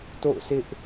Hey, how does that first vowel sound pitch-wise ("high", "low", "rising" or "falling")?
falling